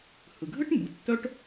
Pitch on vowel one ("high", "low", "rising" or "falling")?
low